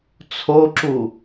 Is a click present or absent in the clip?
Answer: present